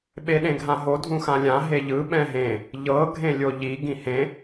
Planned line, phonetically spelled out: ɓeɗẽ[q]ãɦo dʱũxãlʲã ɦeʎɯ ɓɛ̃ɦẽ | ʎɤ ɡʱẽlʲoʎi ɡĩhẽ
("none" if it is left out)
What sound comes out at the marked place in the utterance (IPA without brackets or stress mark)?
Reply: ɡʱ